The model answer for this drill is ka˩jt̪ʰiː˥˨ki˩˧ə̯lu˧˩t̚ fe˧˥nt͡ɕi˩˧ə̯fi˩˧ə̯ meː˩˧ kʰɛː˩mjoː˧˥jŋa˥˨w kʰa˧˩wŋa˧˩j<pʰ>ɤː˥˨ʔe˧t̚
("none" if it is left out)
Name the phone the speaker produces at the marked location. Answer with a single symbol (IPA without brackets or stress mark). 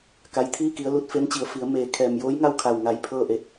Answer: pʰ